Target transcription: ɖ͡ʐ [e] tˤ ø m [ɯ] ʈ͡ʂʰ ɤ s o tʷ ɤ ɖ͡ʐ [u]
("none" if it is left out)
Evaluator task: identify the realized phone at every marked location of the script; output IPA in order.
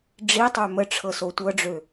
i, ə, ø

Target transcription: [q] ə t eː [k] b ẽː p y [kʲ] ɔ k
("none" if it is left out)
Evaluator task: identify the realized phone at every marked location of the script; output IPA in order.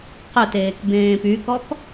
q, k, k

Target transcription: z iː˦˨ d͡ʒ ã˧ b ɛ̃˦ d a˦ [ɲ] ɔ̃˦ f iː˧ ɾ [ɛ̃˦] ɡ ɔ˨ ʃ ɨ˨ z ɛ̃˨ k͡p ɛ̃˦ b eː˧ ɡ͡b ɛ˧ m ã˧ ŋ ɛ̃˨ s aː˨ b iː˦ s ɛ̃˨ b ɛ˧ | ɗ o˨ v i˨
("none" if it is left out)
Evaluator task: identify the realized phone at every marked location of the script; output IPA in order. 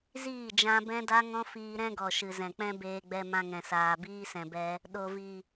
ŋ, ɛ̃˦

